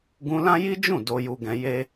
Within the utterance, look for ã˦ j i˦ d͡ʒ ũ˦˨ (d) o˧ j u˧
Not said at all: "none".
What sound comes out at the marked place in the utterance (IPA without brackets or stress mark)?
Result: d